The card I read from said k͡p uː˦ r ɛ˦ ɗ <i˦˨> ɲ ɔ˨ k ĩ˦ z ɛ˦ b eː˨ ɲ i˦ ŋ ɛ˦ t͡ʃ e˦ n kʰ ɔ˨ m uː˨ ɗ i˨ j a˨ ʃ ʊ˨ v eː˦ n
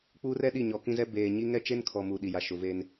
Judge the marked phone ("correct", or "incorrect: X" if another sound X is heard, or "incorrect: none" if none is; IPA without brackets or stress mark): correct